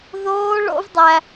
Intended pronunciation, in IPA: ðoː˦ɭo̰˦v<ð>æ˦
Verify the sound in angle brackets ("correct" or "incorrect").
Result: incorrect